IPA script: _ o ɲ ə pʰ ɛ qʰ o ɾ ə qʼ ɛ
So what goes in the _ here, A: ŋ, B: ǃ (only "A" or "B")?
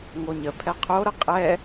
A